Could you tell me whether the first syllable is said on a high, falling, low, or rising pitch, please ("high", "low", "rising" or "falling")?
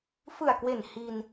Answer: low